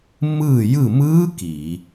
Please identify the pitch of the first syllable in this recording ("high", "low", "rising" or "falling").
falling